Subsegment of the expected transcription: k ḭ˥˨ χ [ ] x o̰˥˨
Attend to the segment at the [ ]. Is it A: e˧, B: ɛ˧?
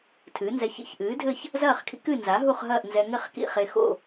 A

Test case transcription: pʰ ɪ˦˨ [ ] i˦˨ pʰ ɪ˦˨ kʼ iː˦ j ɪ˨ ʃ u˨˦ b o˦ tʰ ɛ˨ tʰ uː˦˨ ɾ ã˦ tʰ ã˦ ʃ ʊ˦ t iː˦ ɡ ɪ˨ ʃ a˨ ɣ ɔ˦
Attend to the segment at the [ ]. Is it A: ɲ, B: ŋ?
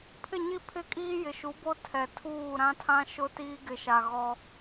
A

